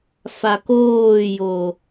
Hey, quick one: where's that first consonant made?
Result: lips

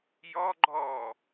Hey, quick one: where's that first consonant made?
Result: palate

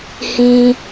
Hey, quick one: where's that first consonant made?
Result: throat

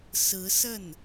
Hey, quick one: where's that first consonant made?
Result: tongue tip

